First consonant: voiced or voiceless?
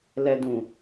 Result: voiced